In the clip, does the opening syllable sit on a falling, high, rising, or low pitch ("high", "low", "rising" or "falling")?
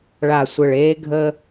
low